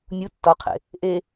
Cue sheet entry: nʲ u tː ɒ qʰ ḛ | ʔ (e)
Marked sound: correct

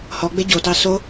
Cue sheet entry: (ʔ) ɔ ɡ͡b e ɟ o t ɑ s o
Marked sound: incorrect: h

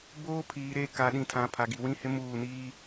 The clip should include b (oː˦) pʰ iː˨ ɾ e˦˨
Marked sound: correct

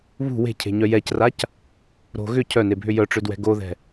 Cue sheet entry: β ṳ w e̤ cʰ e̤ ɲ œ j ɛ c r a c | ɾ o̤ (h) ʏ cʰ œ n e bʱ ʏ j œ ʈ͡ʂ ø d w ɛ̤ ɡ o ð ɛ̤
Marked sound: incorrect: ɣ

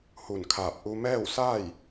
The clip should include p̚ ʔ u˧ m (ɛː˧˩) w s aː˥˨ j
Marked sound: incorrect: ɛː˥˨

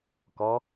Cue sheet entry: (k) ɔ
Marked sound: correct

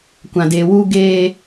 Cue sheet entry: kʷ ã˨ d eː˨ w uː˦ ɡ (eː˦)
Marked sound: correct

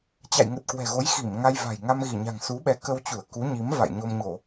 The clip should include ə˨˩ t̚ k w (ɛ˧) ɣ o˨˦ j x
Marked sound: incorrect: ɛ̤˨˩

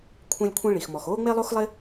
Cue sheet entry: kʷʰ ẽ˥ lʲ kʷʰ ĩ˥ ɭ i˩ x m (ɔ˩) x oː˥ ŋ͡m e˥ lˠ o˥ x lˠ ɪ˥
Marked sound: correct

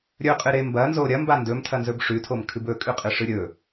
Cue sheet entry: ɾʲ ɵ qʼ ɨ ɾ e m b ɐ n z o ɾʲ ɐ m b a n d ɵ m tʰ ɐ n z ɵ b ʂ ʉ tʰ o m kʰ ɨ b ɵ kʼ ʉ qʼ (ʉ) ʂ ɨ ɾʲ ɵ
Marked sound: incorrect: ɨ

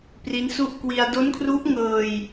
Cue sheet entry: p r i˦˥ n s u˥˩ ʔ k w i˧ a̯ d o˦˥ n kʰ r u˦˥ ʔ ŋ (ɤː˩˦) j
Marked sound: incorrect: ɤː˧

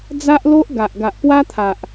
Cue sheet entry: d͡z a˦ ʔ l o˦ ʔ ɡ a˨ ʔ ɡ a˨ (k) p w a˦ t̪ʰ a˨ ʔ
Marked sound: incorrect: ʔ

